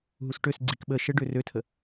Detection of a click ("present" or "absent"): present